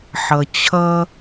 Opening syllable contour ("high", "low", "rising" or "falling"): low